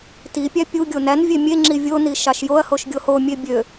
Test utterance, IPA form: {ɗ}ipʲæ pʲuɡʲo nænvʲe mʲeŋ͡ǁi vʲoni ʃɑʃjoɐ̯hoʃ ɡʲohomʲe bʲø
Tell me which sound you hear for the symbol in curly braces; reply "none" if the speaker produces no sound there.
t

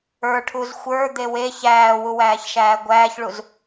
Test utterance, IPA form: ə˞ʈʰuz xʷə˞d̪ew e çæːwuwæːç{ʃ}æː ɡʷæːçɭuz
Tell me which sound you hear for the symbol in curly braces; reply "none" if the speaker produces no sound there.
ʃ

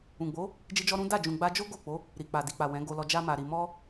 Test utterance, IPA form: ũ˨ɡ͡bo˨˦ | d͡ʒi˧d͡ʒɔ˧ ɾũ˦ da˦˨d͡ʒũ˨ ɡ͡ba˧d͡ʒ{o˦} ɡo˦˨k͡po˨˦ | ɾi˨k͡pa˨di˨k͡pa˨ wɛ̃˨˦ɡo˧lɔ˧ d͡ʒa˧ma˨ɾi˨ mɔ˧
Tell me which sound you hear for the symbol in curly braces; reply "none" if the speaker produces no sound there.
o˦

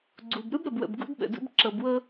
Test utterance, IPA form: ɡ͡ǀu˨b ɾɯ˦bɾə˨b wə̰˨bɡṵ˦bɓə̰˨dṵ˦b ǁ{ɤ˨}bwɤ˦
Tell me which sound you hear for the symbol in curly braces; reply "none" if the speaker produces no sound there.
ɤ˨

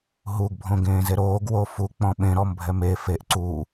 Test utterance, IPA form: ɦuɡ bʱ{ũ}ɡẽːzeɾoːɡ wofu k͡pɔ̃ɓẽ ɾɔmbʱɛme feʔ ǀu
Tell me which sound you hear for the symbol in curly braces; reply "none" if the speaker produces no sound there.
õ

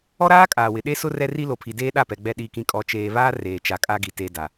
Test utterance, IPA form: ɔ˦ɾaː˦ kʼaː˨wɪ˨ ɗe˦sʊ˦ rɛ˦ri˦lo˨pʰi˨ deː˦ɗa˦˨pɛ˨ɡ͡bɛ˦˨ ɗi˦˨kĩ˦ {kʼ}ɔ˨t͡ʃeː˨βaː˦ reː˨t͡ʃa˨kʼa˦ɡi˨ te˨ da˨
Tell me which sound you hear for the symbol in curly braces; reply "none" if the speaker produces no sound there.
kʼ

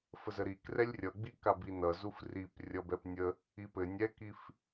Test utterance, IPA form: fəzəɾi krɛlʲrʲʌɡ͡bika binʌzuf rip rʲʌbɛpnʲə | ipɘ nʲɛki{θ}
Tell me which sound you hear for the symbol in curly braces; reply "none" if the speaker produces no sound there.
f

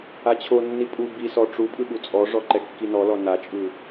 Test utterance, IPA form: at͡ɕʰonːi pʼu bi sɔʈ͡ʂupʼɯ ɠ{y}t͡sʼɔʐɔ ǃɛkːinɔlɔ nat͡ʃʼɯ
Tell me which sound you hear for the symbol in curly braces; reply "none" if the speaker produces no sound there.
u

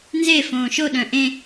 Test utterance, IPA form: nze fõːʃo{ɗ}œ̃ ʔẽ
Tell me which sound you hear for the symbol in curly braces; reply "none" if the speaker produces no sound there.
ɗ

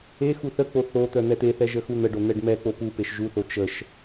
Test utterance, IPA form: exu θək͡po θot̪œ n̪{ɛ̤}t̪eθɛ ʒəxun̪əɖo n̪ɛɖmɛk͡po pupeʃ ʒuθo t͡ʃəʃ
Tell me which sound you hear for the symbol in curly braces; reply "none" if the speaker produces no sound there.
ɛ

